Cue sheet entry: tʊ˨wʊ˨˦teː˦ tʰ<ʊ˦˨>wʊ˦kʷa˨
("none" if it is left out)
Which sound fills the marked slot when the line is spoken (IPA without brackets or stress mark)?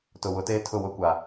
ʊ˦˨